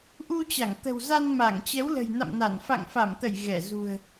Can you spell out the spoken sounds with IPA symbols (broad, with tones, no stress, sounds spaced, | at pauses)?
ʔ u˧ t͡ɕ a˧˩ ŋ t̪ ə̤˨˩ w z a˧ n m a˧˩ ŋ t͡ɕ ɛ˨˦ w l ə̤˨˩ j n a̰˧˨ m n a˧˩ n f a̰˧˨ ŋ f a˧˩ m t̪ ə˧˩ j ɣ ɛ˧˩ z ṳ˨˩ ə̯